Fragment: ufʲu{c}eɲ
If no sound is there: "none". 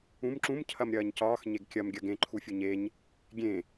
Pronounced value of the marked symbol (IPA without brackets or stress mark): ɲ